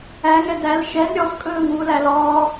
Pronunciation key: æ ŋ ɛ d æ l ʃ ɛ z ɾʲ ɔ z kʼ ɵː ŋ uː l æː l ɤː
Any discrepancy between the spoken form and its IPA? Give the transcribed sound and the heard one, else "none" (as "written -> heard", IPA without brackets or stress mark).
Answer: ɤː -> ɔː